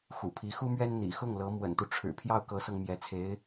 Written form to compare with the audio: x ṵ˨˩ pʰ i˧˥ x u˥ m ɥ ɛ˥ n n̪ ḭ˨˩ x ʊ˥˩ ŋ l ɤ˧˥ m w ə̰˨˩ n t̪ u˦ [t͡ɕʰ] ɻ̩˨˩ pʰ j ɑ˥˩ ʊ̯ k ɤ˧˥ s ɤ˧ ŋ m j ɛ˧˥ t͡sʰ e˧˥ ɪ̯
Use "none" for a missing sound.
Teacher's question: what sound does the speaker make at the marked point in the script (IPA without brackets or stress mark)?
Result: ʈ͡ʂʰ